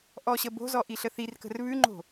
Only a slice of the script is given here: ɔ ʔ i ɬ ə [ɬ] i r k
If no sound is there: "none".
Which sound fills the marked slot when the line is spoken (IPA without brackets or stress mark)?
θ